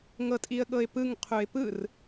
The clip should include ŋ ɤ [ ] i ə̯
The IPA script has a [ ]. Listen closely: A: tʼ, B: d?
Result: A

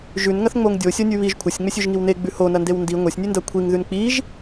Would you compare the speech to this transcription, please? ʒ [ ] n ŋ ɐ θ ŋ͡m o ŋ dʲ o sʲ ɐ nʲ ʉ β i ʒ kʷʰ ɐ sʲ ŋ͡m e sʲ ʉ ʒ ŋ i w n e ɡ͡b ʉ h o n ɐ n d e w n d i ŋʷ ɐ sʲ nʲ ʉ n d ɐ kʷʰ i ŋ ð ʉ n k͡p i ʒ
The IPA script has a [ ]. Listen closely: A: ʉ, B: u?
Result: A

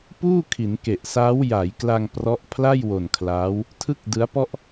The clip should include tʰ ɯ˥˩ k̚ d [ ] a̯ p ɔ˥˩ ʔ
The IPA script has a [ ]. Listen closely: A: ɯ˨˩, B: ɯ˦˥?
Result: B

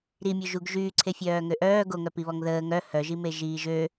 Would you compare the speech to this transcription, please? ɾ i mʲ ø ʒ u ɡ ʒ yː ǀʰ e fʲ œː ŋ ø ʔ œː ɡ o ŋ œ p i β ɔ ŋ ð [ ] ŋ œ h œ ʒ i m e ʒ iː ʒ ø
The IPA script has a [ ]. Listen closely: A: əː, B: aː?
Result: A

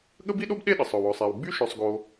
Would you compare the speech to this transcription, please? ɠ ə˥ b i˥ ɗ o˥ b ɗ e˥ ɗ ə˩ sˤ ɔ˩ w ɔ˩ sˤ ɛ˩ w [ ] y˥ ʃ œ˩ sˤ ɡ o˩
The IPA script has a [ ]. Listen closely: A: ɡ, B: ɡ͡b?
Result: B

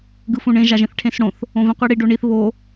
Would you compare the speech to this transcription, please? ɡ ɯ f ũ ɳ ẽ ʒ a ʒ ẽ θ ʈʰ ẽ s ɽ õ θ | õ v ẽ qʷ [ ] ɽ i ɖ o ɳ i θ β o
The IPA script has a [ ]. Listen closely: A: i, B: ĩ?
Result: A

